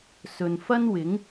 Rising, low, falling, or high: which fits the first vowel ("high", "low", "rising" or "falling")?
low